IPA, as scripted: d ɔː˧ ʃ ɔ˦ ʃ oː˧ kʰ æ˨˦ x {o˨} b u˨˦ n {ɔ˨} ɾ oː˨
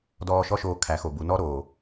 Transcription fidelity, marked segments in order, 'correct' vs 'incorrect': correct, incorrect

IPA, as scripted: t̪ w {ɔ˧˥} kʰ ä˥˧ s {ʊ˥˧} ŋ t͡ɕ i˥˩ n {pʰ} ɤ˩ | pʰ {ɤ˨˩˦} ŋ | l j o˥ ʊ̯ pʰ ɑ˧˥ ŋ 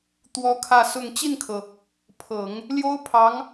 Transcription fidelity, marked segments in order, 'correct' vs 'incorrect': incorrect, correct, incorrect, correct

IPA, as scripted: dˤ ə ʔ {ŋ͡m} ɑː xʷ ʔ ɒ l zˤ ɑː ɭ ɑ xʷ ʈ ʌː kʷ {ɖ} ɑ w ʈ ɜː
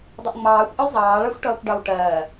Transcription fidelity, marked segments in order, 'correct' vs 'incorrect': correct, correct

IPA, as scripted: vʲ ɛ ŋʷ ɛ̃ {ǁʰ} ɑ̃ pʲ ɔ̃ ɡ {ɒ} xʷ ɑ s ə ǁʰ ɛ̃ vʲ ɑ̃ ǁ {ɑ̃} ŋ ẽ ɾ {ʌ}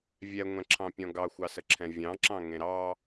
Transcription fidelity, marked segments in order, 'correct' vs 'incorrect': correct, incorrect, correct, incorrect

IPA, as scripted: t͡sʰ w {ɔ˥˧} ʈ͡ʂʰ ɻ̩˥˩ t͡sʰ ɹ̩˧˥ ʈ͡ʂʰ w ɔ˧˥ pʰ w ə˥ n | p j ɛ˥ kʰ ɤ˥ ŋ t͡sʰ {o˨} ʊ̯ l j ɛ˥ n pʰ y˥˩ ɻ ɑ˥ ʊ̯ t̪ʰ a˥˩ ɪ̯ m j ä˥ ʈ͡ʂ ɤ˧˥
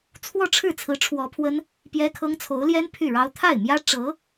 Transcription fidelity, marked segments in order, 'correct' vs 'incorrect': correct, incorrect

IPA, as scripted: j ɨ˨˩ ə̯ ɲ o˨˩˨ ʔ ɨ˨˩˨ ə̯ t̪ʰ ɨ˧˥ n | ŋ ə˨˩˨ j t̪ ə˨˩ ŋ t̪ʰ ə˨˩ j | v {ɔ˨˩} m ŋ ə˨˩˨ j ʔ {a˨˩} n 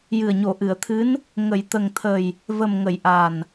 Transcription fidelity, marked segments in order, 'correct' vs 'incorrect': incorrect, correct

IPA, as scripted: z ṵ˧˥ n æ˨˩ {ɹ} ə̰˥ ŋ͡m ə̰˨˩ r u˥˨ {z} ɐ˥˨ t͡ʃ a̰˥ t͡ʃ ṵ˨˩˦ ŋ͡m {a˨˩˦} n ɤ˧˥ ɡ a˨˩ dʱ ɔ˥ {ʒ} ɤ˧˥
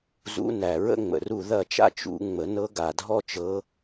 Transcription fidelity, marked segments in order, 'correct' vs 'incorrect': correct, incorrect, incorrect, incorrect

